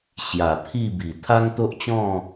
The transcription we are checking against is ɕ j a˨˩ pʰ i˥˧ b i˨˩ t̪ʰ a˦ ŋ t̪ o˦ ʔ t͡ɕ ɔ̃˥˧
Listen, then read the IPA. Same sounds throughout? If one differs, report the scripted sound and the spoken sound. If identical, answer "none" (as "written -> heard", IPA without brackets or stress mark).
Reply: none